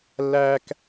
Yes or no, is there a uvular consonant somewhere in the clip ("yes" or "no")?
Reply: no